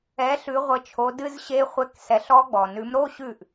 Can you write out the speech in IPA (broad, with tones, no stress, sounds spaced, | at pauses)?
ɛ˨˦ ɬ ʉ˨˦ ʁʷ ə˨˦ t͡ʃʰ o˨˦ d ɨ˦˥ z ɕ e˦˥ χʷ ɛ˧˥˧ k s ɛ˨˦ ɬ ɔ˦˥ ɡ͡b ɔ˩ n ʉ˨˦ m ɾ o˧˥˧ ɕ ʉ˥˩ ʔ